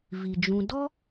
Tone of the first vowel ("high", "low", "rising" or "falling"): low